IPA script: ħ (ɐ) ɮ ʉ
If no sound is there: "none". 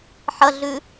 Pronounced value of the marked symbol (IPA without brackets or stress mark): ɐ